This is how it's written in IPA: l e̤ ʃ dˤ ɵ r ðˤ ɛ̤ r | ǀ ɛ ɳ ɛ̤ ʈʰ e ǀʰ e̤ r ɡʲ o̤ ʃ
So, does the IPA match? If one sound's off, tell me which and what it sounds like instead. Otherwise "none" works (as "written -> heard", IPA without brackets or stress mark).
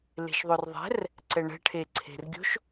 dˤ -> ðˤ